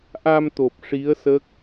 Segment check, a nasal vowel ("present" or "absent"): absent